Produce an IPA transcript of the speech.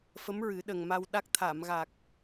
fə˧˥mɹɨ˨˩˦ ɗə˨˩ŋma˧wɗa˦˥k̚ t̪ʰa˨˩˨mɣa˨˩k̚

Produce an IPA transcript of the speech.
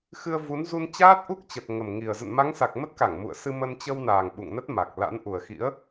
xɨ˧ə̯vu˨˦n zu˧nt͡ɕaː˦˥t̚ʔu˦˥k̚t͡ɕə˨˩t̚ ŋə˨˩mŋi˨˩ə̯ zə̰˧˨nma˨˦ŋsa˨˩k̚ mə˦˥t̚ka˧˩ŋ mṵ˧˨ə̯sɨ˧mə˧n t͡ɕə˧wnaː˨˩ŋ ɓṵ˧˨ŋnə˦˥t̚ma˨˩k̚la̰˧˥n ʔu˨˩ə̯xḭ˧˥ə̯

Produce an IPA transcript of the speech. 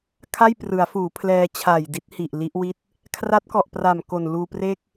kʰa˥˩jprɯ˩˦a̯fuː˩˦ pʰlɛː˧t͡ɕʰaː˨˩j di˦˥t̚hi˨˩ʔ li˦˥ʔwi˥˩t̚ | kʰra˦˥t̚kɔ˨˩ʔpra˨˩m ko˨˩nluː˧pre˥˩k̚

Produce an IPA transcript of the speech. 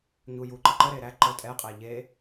ɲujuǃəǃə ɾeɾæ ǃə tʼɛqʼæ ʎe

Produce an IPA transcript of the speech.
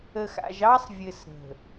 ə˨xa̰˨ʒɑ˦sˤvʲɘ˨s ɾə̤˨

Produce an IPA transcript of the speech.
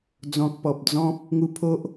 d͡zɔ̃˨k̚pɔ˨p̚ d͡zɔ̃˦p̚ | ŋu˧ pʰo˦ʔ

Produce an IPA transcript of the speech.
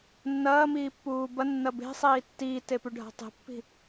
nːɐːmiːpːuː bɐnːɐ be̤sˤiː tːiːtepʉɖʱa̤ tˤe̤pːi̤

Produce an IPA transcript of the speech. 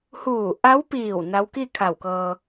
huː˧˩ʔa˧˥wpiː˧˩w na˧˥w ki˥˨kʰa˧˩wkɤː˧

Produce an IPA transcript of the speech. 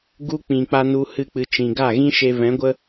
ɡu˦k͡pĩ˨ k͡pa˧nu˧hɨ˧k͡pɨ˨ t͡ʃĩ˨ɡa˦˨ ɣĩ˦ʃe˧vɛ̃˨˦ɡʷə˦

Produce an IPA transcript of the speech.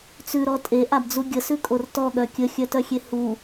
t͡sʉɾɔ tʼeʔabd͡zu ɡʲəsʉkʼor tɔɠœ kʲəxʲœtœxʲe hu

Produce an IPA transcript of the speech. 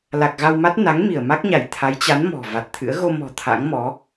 la˨˩k̚ɣa˧w ma˦˥t̚ na˨˦ŋ mi˧˩ə̯ ma˦˥k̚ɲa˧˩j t̪ʰa˨˦jt͡ɕa˨˦n mɔ̤˨˩va˨˩t̚t̪ʰɨ̰˧˥ə̯ ɣo˧mɔ̤˨˩ t̪ʰa̰˧˥ŋmɔ˨˦

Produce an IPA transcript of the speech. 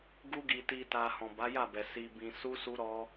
ɡu˧ɡi˨ ti˨ta˨ hɔ̃˨ba˨˦ja˦˨bɛ˨ si˨bĩ˨ su˧su˧ɾɔ˧

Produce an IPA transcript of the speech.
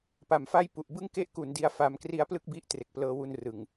pa˨˩mfa˥˩jpu˨˩ʔ bɯ˥˩ŋ ke˥˩ʔku˩˦ndi˧a̯ fa˧m kri˦˥a̯plɯ˥˩k̚ bi˦˥ʔtre˨˩k̚plɤː˧wu˧n rɯ˨˩ŋ

